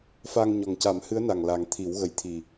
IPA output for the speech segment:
f a˧ ŋ ɲ ɔ˨˩ ŋ c a˨˩˦ m h ɨ˧˥ ə̯ n a˨˩ ŋ l a˨˩ ŋ t̪ʰ i˨˩˦ w ɣ ə˨˩ j t̪ʰ i˨˩

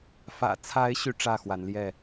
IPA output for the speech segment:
f ä̰˨˩ t͡sʰ a˨˦ ɪ̯ ɕ y˦ ʈ͡ʂ ä˥˨ x w a˨˦ n l j ɛ˥˨

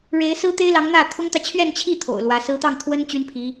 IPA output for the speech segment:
ɻ e˧˥ ɪ̯ s ɹ̩˥ t̪ e˥ ɪ̯ l ɑ˧˥ ŋ n̪ ä˥˩ t̪ʰ ʊ˥ ŋ t̪ ä˨ t͡ɕʰ ɥ ɛ˥˧ n t͡ɕʰ i˥˩ t̪ʰ o̰˨˩ ʊ̯ l w ä˧˥ s ɹ̩˧˥ t̪ ɑ˥˩ ŋ t̪ʰ w ə˥ n t͡ɕ y˥ n pʰ i˧˥

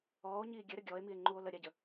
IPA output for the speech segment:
ɔː o̯ ɲ iː ɡʲ ɘ ɾ ɘ ɡʲ ɔ e̯ m i e̯ ŋ͡ǃ u o̯ l ə ɾʲ a ɟ ə

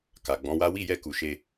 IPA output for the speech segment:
k a˨ ɡ͡b ɔ̃˨˦ w a˦ w i˦˨ j ɛ˧ k u˨ ʃ e˧

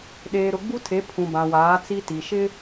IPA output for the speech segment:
ɗ eː˨ ɾ ʊ˨ ɡ͡b u˦ tʰ e˨˦ pʰ ũ˨ b ã˨ w aː˨˦ t͡s i˦ t i˨ ʃ ɪ˦

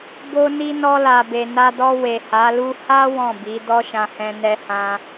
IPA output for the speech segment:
b o˦ n i˦ n ɔ˦ l a˧ b e˨ n a˧ d ɔ˧ w e˨ h a˨˦ l u˦ h a˦ w ɔ̃˦˨ b i˨˦ d ɔ˦ ʃ ã˧ h ɛ̃˧ n ɛ˧ h ã˧

